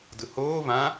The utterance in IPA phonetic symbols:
dɯhoː vã

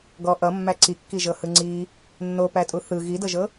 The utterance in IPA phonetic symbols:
ɡɔ ʔʌmːæ ǀikːiʒɤhɯ ŋ͡ǀi | nːopætʼu θɯ ɣidɤʒɤ

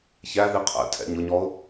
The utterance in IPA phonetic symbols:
çæði qʰɛ̰tʰɛ̰ɲ ʊɲɔʊ̯

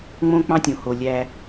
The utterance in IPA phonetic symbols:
ŋ͡mõ˦k͡pɑ̃˦ tʲõ˨ho˨ lʲæ˦

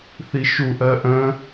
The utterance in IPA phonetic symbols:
θiʃuʔɜ ʔə̃

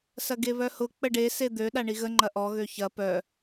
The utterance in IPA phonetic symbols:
sɐɡeβœhʊ k͡pəɖe sed̪ø ɗaɳiɣə ŋ͡ǃɐʔɔ ɣøçɐ pœ

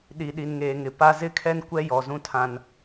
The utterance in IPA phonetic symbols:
ɗi˨ɗi˨nŋeː˨ŋɪ˨ pa˨ zɪ˦kʰɛ˦n kʷɛ˦jɔ˨zũ˦tʰã˦n

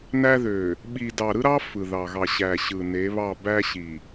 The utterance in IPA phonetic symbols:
næ˦ðø˨ | ɓi˨dɑ˨ɾɯ˦ɾɑ˦ fɯ˨ðɑ˨ɣɑ˨ ɕæ˨ɕɯ˨ ne˨˦βɑ˦˨ bæ˦ɕi˨

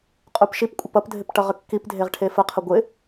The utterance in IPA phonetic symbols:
qʼupʃipkʷʼəp ʌpdʱɪp ʈʌʁəkːipdʱeʁ ʈʰefəqʰə ɡʷɪ

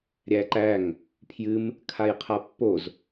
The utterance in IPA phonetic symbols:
ɾʲæǃæŋ | pʰjɨm | kʰajqʰapːoz

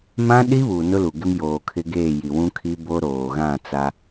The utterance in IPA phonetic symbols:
mã˦ɗi˦ βuː˨nʊ˦lu˨ɡɪ˦m joː˨kʰɪ˦ɡeː˦˨ ji˨wũ˦kʰi˦ bo˦ɾoː˨ ɣã˦˨t͡sa˦

